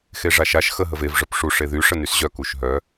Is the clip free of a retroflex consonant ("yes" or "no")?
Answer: no